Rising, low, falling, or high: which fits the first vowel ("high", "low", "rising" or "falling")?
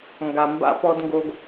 low